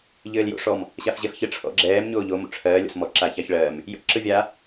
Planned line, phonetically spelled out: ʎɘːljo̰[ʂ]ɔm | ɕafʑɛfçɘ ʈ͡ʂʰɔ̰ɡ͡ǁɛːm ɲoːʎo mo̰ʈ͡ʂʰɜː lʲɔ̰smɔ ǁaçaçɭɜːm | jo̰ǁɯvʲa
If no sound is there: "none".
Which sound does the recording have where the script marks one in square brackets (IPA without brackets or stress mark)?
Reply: ʂ